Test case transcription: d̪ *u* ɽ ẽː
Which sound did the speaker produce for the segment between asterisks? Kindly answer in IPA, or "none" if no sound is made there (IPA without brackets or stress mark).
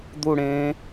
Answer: u